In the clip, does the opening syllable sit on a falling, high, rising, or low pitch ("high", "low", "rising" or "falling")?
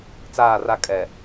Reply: falling